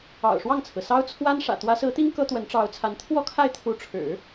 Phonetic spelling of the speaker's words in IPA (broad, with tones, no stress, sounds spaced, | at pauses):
ɑ̰˨˩ ʊ̯ ʂ w ɑ˥˩ ŋ t͡sʰ ɹ̩˩ s ɑ˥ ʊ̯ t͡sʰ w a˥ n ʂ ä̰˨˩ t̪ w ä˧˥ s ɹ̩˧˥ t̪ i˥ ŋ k ɤ˥ t̪ w ə˧˥ n ʈ͡ʂ ɑ˧˥ ʊ̯ t͡sʰ a˧˥ n t̪ʰ w ɔ˥˧ kʰ a˥˩ ɪ̯ t̪ʰ u˧˥ ʈ͡ʂʰ ɻ̩˨˩˦